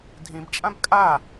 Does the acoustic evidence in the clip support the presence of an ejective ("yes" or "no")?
yes